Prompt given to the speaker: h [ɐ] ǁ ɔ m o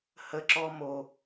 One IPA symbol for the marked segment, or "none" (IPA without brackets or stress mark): ə